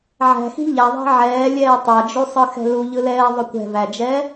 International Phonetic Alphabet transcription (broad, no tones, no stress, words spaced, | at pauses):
ʕæ̤xi̤ ʎæðˤæ̤ ʕɛːlʲɛː tˤad͡ʒusˤɯxɛ̤ luʎɯlɛːðˤʏ kʷɛ̤væd͡ʒɛː